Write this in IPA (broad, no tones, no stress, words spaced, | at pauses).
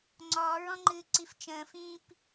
ŋ͡ǀɔːɹɔ̃ŋ͡ǃɨː ǀift͡ʃə̃ːfĩːp